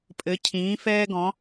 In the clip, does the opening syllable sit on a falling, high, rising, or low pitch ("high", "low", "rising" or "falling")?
rising